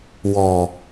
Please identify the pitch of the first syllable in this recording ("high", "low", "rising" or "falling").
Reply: low